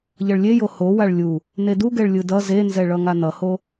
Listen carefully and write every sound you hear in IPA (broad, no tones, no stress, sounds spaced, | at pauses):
ʎ ʌ ɭ lʲ e j o h o w a ɭ lʲ u | n e d u ɡ ɛ ɭ lʲ ɯ d ʌ z e n z ɛ ɭ ʌ ŋ a n ʌ h o